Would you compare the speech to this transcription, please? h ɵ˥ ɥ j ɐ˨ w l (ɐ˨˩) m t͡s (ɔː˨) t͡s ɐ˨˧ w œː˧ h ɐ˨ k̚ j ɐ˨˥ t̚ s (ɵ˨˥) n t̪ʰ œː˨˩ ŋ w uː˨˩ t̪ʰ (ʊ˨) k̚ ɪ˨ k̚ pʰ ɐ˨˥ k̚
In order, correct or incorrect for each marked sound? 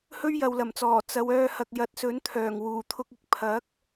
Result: correct, incorrect: ɔː˨˩, correct, incorrect: ʊ˧

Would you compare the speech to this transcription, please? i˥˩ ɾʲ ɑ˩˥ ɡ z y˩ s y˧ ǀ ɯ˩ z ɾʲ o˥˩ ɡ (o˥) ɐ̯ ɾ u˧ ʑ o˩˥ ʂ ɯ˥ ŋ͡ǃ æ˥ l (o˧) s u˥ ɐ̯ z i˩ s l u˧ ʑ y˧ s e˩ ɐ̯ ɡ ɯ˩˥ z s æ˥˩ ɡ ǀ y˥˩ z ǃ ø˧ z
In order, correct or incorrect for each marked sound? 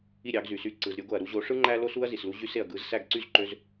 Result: incorrect: o˩, incorrect: o˥

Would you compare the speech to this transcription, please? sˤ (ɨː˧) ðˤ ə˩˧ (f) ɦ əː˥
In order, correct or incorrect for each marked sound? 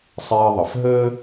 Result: incorrect: eː˧, correct

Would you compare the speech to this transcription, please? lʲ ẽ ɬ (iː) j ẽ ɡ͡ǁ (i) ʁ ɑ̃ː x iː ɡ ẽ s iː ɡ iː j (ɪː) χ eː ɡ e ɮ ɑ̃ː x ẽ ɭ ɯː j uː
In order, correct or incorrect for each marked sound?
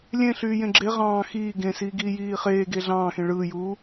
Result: incorrect: yː, incorrect: e, incorrect: iː

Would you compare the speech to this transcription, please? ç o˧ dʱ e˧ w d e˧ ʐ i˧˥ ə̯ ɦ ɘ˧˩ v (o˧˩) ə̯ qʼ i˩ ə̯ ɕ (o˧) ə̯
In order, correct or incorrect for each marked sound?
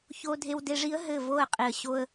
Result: correct, correct

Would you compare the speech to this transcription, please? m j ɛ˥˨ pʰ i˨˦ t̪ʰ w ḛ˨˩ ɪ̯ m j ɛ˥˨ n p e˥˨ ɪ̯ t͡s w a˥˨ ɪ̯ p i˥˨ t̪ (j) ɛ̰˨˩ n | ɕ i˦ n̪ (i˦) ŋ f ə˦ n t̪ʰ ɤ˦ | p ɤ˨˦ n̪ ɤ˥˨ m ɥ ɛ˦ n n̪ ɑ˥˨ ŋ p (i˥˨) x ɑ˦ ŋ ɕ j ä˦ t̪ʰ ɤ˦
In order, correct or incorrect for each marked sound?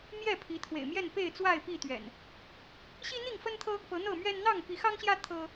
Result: incorrect: ɥ, incorrect: i˥˨, incorrect: i˨˦

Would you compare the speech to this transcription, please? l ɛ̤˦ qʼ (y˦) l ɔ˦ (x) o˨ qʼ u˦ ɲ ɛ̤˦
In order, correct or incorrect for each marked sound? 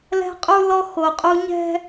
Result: incorrect: u˦, correct

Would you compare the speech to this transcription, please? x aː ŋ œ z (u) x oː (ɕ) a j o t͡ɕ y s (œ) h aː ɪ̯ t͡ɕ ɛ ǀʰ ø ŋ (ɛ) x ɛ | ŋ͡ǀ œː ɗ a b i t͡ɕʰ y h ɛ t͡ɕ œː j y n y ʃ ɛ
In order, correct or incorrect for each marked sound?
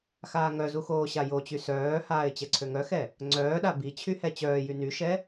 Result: correct, correct, incorrect: œː, incorrect: œ

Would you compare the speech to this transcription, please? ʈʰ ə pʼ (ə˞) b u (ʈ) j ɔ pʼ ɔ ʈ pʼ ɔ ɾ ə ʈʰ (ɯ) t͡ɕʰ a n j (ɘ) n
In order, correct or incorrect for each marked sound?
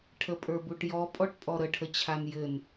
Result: correct, correct, incorrect: ə, correct

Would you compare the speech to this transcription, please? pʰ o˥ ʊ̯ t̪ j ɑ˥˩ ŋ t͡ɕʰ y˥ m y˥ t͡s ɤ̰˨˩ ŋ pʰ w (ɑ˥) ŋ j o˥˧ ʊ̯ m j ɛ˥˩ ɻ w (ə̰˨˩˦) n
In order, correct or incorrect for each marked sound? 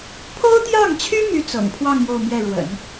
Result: incorrect: ɑ˥˧, correct

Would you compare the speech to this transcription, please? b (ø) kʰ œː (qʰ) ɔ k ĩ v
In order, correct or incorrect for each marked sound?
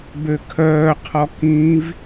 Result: correct, correct

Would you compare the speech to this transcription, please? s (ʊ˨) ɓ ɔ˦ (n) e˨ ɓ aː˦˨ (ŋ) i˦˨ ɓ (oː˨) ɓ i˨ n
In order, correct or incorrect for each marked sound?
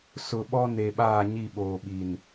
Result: correct, correct, incorrect: ɲ, correct

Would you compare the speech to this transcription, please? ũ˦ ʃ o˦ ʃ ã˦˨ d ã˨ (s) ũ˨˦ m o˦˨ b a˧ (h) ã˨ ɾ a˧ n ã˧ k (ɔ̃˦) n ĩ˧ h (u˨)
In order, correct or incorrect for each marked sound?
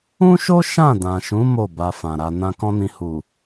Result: incorrect: ʃ, incorrect: f, correct, correct

